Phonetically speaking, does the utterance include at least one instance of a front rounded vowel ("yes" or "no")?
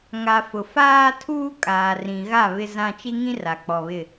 no